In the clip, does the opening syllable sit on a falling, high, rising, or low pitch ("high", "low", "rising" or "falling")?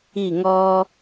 falling